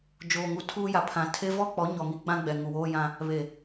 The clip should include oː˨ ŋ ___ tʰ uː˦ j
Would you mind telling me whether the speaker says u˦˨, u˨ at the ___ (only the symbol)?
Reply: u˨